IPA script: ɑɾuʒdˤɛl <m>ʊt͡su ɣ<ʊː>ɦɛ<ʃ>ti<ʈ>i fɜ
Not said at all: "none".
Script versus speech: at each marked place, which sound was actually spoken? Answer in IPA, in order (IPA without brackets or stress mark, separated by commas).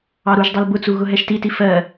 b, ʊ, ʃ, t